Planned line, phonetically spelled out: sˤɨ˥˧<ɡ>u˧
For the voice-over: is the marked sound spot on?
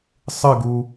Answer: yes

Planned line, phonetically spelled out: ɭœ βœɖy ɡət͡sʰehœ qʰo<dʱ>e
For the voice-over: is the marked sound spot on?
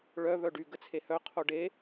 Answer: no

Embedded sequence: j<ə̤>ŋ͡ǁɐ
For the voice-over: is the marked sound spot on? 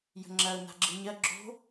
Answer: yes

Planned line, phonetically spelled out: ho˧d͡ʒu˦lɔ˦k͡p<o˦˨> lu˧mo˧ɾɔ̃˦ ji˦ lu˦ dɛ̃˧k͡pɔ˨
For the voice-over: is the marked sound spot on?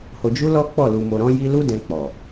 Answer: no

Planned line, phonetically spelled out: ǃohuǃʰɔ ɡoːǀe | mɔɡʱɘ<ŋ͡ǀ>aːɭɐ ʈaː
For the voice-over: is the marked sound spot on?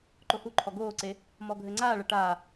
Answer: yes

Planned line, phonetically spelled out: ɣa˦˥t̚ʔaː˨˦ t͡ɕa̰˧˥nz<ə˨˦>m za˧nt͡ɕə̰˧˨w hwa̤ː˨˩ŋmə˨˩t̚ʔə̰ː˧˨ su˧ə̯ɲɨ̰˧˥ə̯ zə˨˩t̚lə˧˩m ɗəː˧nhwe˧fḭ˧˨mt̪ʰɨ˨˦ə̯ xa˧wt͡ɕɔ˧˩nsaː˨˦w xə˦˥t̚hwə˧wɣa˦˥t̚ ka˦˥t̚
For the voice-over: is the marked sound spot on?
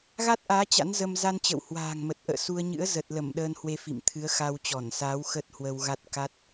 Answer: no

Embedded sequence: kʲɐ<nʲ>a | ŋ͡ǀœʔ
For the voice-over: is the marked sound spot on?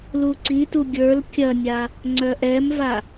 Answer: yes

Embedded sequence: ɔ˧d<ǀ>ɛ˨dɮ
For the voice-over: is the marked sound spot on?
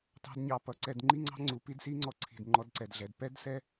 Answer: yes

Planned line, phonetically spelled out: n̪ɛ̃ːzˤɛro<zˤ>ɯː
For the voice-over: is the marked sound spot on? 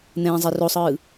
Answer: no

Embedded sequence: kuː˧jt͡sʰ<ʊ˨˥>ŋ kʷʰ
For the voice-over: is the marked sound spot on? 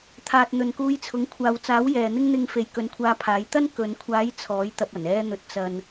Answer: yes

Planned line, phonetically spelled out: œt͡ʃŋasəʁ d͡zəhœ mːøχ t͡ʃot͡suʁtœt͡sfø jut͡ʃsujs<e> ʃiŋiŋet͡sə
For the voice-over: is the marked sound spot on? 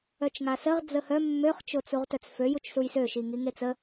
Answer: no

